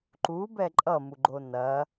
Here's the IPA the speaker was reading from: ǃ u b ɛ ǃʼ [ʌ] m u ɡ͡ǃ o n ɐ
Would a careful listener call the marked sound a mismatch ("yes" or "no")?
no